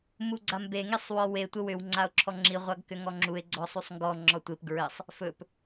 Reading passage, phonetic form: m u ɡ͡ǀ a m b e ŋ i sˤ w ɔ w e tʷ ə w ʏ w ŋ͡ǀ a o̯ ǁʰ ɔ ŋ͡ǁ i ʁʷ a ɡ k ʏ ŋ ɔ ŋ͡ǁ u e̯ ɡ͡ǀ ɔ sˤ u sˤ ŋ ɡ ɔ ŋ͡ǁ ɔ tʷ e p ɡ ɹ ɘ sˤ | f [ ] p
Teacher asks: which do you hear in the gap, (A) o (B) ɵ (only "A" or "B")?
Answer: B